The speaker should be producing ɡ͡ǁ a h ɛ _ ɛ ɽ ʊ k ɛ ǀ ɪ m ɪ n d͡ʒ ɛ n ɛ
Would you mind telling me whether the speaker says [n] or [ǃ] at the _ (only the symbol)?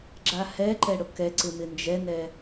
ǃ